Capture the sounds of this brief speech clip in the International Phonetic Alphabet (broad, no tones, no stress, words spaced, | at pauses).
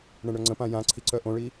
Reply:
ɳɛ̃ɳœŋ͡ǀə̃pã jã ǀʰiǀœʔõɭi